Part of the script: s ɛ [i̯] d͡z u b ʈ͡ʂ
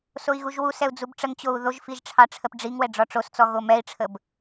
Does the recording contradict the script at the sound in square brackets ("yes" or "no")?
yes